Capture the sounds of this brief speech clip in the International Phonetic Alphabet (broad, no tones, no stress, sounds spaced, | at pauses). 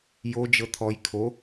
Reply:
j o d͡ʒ ɤ t̪ʰ ɔ j kʰ o